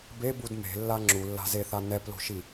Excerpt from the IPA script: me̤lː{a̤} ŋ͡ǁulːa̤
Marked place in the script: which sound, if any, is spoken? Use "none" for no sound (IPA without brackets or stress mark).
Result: a